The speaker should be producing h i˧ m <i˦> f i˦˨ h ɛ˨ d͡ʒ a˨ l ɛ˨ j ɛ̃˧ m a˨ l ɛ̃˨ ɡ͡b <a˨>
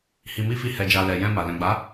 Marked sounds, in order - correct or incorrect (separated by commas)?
correct, incorrect